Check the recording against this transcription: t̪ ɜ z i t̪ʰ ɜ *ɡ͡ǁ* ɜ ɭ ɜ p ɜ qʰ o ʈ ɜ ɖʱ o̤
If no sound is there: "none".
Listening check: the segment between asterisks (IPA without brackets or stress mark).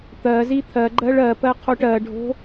ɡ͡ǃ